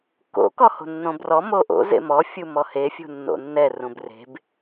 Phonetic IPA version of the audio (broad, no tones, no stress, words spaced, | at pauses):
ko̰ kɔho̤nːõbrɔ moʔo̰ zḛmɔ fʲumɔhe fʲṳnːo̰nːɛ rũbre̤b